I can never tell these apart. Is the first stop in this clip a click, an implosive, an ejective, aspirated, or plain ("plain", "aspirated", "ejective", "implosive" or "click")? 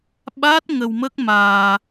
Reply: implosive